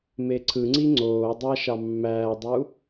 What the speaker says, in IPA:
m e ǀʰ ɯ ŋ͡ǀ i ŋ͡ǀ oː dˤ ɑ ʃ ɑ mː æː dˤ u

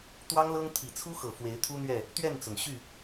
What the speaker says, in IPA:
t̪ w ɑ˦ ŋ l ɤ˦ ŋ t̪ʰ i˨˩ t͡sʰ u˦ x ɤ˨˩ f w e˨˦ ɪ̯ t̪ʰ u˦ n̪ ɥ ɛ˥˨ | t̪ ɥ ɛ˥˨ n t͡s ʊ˩ ŋ ɕ y˥˨

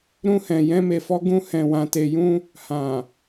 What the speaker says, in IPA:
ɾ ũ˦ h ɛ̃˧ j ɛ̃˦ m e˧ f ɔ˦ ɡ ũ˦ h ɛ̃˧ w ã˧ t e˧ j ũ˦ | h ã˨

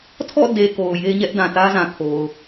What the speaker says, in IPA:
tʰ ɔ̰˦˨ d e˨ k o˨ ʊ̯ j e˦ ɲ ɛ˦ ʔ d ã˨ t ä˦ z ã˨ kʰ o˨ ʊ̯

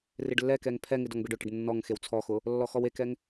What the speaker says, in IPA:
r ɪ ɖ lː ɛ k ɛ ŋ pʰ ɛ ŋ ɪ d ɔ ŋ b e ɖ ʊ ʈ ɪ ɖ nː ɔ ŋ x e w t͡sʰ ɔ x ʊ | lː ɔ x ɔ w e k ɛ ŋ

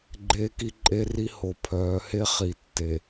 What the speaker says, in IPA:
ɡ͡ǃ eː˦ k i˦ ǃʼ e˦ r i˦ h o˨ pʰ œː˨˦ h e˦ χ i˨ tː e˨

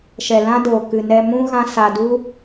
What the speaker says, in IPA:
ʃ ɛ˨ l ã˦ d oː˨ k ɨ˨ n ɛ˧ m ũ˦ ɣ ã˦ s a˧ d u˦

